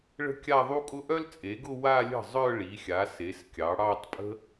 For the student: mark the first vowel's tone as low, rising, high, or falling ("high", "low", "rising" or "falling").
high